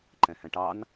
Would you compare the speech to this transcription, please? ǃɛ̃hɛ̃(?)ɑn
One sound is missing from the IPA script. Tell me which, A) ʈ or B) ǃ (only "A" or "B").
A